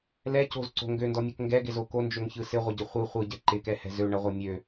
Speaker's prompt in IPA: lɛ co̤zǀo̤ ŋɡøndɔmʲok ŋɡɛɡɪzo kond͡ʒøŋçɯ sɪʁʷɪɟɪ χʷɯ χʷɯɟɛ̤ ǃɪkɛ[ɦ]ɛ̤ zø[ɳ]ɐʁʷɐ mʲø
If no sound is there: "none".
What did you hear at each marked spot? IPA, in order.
h, ɳ

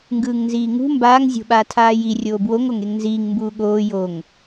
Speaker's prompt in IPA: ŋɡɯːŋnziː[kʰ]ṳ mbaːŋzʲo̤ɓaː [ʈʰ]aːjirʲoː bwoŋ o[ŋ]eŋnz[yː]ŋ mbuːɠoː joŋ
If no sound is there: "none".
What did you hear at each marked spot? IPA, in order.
ŋ, tʰ, ŋ, iː

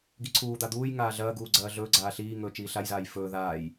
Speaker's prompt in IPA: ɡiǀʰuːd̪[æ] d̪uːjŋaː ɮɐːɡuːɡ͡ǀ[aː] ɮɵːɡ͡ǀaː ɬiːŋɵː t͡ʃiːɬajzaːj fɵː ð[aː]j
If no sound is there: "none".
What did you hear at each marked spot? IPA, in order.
a, ɐː, aː

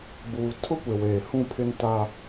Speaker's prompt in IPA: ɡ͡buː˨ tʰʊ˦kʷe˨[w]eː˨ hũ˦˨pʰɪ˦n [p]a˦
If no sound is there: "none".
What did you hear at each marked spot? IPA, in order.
w, t

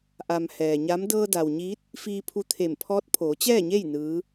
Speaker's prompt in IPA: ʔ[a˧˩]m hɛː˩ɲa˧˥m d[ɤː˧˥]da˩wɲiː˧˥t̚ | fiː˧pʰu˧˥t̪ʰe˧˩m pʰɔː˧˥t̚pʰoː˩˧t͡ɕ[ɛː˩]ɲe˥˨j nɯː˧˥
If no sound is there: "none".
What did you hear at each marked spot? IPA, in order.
a˩, ɤː˧, ɛː˥˨

